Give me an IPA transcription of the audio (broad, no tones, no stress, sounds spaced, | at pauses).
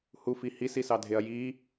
h u f i h i s i s ɑ dʱ e ɐ̯ j i